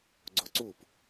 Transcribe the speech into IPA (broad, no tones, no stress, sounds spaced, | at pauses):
ɡ͡ǀ o ǀ u p